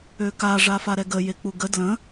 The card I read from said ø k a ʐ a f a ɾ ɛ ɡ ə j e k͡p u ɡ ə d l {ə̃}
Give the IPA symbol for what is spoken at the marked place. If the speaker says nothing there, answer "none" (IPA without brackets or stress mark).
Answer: ə̃